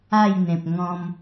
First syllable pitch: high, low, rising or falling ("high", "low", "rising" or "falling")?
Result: falling